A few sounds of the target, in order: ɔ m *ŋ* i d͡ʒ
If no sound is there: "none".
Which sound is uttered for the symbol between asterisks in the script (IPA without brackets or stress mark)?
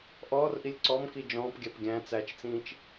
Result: k